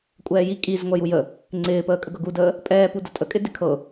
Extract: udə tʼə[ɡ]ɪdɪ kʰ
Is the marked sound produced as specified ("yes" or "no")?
no